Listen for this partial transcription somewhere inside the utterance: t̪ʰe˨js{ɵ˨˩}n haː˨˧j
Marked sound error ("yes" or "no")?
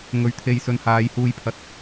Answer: yes